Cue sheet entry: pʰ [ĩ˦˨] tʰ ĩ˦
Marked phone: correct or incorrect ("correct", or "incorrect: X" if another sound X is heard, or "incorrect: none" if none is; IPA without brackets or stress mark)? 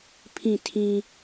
correct